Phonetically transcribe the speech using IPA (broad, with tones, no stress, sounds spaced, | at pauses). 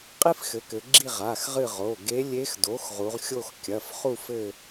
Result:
qʼ i˥ f x ɘ˩˥ k ɘ˩˧ ɡ͡ǁ i˦˨ ʁ a˩˧˩ x ʁ ɨ˦˨ ʁ o˩˧˩ ɡ e˧˥ lʲ e˧˥ x d o˩˥ x ʁ u˩˧ ʁ xʲ o˦˨ x kʲ ɐ˩˧˩ f χ u˦˨ f ɘ˦˨